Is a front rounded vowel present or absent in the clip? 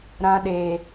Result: absent